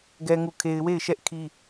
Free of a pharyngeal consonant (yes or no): yes